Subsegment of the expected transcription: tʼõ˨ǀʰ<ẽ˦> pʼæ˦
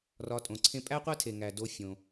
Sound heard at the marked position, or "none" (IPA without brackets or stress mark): ẽ˦